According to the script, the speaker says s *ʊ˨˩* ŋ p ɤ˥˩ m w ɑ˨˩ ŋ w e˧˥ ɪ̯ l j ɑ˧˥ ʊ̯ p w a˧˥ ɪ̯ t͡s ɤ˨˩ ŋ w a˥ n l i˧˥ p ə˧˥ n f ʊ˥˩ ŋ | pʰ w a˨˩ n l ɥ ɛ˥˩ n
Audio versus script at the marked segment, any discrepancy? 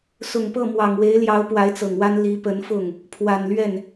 no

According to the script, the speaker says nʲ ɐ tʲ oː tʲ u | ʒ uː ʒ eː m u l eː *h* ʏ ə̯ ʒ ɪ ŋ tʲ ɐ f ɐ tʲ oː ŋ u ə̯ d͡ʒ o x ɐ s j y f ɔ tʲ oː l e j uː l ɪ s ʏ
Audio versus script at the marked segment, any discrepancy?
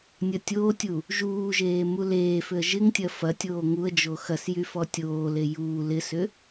yes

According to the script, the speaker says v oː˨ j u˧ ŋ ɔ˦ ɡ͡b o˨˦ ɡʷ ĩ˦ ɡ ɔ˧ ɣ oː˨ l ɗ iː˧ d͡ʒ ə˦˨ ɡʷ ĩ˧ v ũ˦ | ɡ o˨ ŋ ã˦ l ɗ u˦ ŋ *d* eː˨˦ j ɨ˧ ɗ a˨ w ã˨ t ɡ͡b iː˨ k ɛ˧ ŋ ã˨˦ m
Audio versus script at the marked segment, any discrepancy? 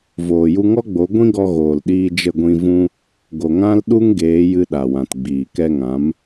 yes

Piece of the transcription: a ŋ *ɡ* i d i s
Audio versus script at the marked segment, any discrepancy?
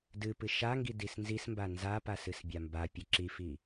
no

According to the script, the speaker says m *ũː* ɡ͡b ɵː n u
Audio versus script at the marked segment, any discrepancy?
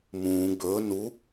no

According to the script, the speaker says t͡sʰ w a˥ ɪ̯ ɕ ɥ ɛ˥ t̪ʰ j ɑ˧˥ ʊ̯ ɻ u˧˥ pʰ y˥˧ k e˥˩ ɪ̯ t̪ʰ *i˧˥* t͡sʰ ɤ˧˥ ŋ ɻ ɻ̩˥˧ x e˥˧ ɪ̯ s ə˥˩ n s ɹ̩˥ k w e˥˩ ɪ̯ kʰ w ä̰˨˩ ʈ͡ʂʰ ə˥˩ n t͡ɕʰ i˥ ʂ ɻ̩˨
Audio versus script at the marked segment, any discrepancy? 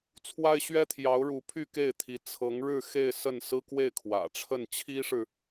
no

